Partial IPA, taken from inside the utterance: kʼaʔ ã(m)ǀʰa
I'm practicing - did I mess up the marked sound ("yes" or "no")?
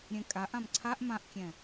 no